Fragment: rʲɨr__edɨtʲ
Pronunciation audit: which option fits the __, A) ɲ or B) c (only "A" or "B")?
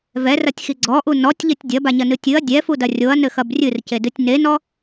B